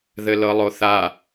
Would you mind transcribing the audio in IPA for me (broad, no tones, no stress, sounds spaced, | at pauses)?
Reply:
ð ɘ l ɤ lˠ o θ a